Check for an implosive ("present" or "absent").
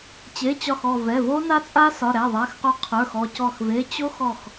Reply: absent